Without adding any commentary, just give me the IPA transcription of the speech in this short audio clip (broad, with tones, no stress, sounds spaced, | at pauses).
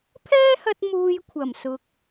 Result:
pʰ ɛː˥ h ɐ˧ t̚ m uː˧ j kʷʰ ɐ˨˩ m s ʊ˨ k̚